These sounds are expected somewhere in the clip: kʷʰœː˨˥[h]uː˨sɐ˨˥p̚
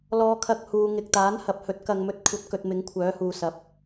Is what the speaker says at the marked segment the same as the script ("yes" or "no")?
yes